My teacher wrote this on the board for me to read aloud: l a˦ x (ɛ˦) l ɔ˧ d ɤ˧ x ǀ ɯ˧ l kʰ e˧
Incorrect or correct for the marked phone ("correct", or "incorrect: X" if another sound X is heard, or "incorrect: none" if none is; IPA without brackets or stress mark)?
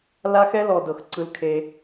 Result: correct